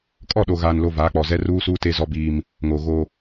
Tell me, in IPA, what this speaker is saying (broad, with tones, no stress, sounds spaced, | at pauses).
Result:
kʼ ɔ˦˨ ɗ o˨ ɣ aː˨ n l o˨ v aː˨˦ k͡p ɔ˨ z ɛ˦ r uː˦ s uː˦ t e˦ z ɔ˦ b iː˦ m | ŋ oː˨ ɣ oː˦